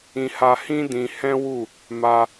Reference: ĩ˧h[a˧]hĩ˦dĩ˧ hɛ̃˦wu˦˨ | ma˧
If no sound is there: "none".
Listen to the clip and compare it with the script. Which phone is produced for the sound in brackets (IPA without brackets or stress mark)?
a˧